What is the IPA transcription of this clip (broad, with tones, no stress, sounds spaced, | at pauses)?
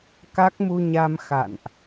k a˦˥ k̚ m u˧ ɲ a˧ m x a̰˧˨ n ʔ